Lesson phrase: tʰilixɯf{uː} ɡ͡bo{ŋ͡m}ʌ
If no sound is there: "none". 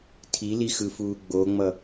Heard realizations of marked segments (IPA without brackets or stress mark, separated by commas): uː, ŋ͡m